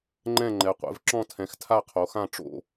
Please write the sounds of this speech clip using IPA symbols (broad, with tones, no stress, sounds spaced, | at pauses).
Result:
ŋ͡ǃ ɛ̃˥˨ ŋ͡ǃ ɛ˩˧ qʷ ɛ̰˩˧ v ǁ ɔ̃˥˨ tʰ ɛ̃˩˧ x tʰ a˥˨ qʰ o˩˧ x ã˥˨ ʈ͡ʂ o̰˥˨